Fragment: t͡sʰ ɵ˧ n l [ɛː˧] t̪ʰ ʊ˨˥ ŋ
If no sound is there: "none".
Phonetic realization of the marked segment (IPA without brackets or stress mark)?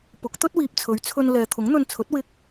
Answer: ɛː˨